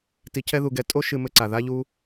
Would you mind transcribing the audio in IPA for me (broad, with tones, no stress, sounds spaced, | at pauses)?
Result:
t i˧ cʰ ɛ˥ ð u˧ ɡ ɛ˧ tʼ o˥ ʃ ɨ˧ m ɘ˧ ǀ a˩ ð a˥ ʎ u˥